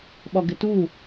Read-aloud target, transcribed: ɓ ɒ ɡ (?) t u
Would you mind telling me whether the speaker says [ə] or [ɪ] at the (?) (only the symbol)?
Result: ɪ